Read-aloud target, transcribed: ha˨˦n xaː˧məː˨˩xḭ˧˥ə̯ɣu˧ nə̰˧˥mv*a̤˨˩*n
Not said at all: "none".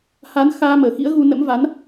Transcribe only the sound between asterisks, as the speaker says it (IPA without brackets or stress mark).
a˨˦